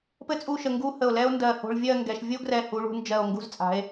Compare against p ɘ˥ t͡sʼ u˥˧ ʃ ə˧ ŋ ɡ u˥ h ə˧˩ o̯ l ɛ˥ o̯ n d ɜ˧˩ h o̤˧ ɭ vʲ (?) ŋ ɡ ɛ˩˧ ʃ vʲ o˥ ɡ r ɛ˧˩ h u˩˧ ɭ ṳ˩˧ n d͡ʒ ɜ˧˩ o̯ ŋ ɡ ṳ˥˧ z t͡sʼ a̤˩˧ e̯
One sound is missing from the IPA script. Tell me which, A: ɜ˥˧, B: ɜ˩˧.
A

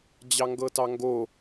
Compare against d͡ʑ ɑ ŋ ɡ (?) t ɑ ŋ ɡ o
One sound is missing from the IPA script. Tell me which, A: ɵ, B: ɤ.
B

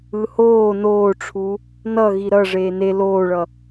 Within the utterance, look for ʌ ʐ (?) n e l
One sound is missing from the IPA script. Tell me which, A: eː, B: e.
A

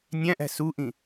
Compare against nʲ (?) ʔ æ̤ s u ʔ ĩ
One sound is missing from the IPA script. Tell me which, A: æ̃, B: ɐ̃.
A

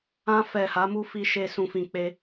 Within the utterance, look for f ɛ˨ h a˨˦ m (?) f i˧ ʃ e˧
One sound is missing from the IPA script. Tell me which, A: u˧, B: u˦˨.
A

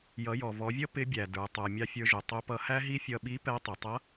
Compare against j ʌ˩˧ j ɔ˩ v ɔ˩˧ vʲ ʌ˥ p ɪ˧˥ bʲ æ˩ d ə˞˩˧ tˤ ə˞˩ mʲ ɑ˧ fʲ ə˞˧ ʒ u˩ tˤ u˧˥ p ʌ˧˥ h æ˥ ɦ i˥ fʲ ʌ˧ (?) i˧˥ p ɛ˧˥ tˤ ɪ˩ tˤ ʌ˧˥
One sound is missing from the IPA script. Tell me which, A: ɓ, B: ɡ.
A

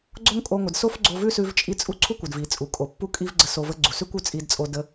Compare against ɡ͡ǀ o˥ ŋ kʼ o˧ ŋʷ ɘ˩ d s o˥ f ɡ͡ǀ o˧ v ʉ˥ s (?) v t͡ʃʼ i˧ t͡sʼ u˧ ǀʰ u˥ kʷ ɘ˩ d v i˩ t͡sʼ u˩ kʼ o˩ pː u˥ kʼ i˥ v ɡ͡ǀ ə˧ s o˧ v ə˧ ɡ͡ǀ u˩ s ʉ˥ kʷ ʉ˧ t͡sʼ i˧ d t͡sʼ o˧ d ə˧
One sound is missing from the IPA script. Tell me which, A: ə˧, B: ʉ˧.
B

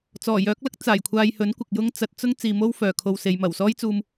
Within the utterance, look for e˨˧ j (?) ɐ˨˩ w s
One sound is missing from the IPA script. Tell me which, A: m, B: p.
A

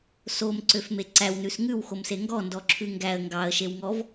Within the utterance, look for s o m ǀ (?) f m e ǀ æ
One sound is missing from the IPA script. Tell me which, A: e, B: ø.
B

